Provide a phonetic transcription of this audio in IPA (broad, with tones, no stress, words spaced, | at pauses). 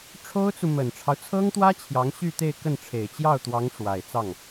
ʈ͡ʂʰo˥ʊ̯t͡su˨ mə˨˩nʈ͡ʂʰɑ˦ʊ̯t͡sʰɤ˥ŋt̪wä˥ t͡ɕʰjɑ˧˥ŋɕy˥˧ t̪e˥˧ɪ̯kə˥˩nʈ͡ʂʰe˨˩ɪ̯ t͡ɕjɑ˥˩ʊ̯t̪wɑ˧˥ŋ ʂwa˨˩ɪ̯t͡sɑ˥˩ŋ